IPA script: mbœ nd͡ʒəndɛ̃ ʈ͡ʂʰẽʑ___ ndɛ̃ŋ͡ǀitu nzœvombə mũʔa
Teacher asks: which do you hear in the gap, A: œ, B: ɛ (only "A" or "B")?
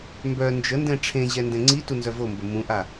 B